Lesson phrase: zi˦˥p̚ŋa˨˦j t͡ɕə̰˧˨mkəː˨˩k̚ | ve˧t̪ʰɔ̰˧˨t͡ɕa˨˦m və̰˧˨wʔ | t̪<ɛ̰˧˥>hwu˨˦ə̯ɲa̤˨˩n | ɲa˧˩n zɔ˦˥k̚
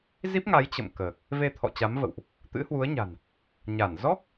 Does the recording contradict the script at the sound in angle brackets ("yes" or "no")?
yes